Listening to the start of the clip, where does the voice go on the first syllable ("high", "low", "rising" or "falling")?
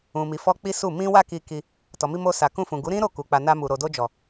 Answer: low